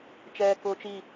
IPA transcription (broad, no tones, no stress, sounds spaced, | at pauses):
t͡ʃ ɛː k ʊː t͡ʃ i